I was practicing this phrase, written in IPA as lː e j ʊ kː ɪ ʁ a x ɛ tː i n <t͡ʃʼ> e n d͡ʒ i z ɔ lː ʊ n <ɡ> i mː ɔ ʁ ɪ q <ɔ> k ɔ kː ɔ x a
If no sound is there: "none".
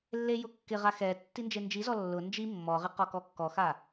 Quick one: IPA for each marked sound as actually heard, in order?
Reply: d͡ʒ, d͡ʒ, ɔ

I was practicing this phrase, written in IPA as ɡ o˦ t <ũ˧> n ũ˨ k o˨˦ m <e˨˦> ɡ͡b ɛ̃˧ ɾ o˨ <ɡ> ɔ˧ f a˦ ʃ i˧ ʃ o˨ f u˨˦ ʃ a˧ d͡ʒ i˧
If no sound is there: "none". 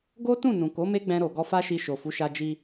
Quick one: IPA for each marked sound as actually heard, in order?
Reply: ũ˦˨, e˦, ɡ

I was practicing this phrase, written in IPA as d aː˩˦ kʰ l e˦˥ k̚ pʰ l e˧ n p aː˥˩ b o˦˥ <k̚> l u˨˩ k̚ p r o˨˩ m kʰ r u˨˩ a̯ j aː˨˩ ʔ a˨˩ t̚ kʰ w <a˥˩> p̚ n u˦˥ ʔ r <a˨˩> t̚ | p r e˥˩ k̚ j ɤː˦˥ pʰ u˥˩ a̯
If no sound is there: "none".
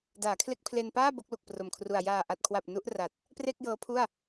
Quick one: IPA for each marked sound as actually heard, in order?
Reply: k̚, a˨˩, a˨˩

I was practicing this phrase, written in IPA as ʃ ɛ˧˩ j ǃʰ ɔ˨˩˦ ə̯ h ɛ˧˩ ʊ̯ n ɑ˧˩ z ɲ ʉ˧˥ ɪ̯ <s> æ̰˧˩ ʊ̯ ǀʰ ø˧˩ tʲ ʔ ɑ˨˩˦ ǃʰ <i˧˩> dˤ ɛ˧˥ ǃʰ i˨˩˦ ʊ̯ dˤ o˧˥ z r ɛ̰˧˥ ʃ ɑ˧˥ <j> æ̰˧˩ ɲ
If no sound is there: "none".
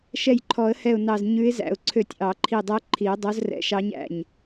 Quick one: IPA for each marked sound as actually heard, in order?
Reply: z, i˧˩, ɲ

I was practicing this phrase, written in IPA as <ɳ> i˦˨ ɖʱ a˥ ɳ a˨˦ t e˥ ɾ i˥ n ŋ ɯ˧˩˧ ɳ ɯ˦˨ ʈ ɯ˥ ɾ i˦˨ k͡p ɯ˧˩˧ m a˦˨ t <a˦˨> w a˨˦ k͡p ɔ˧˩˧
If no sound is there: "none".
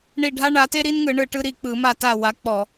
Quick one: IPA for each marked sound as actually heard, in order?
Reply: ɳ, a˦˨

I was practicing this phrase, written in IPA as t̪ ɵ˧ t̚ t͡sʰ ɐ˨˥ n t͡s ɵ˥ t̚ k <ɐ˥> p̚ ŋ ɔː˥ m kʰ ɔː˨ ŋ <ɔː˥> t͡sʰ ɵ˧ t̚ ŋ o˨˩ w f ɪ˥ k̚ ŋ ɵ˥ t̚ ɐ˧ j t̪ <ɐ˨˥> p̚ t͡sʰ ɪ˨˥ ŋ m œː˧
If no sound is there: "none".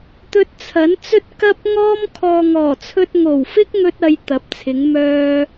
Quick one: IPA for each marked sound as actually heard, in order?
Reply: ɐ˥, ɔː˨˩, ɐ˨˥

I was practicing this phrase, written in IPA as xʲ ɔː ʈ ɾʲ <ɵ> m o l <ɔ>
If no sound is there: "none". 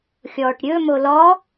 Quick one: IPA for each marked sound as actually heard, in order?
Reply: ɵ, ɔ

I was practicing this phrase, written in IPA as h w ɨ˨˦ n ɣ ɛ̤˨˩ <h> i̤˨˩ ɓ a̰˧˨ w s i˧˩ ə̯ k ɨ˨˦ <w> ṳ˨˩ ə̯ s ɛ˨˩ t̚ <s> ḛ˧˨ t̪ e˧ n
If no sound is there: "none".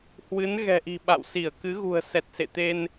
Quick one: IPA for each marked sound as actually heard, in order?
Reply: ʔ, ɣ, s

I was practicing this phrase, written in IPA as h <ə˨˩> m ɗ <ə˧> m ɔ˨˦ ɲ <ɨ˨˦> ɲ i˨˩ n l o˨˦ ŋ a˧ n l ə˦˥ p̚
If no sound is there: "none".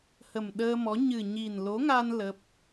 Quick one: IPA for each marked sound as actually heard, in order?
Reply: ə˨˩, əː˧, ɨ˨˩

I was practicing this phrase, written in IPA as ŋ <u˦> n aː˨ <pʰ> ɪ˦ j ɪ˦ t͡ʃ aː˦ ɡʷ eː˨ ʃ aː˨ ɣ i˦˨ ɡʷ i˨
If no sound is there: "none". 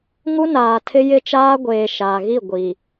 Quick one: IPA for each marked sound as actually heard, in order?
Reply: u˦, tʰ

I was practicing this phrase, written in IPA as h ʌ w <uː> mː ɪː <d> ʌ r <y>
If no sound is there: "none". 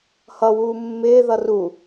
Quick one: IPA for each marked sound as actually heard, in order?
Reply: uː, ð, u

